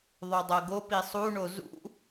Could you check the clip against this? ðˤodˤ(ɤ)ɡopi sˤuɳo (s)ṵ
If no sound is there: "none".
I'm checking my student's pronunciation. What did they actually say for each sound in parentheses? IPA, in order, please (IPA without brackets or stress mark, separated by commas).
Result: ɤ, z